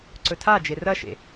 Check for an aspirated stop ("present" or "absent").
present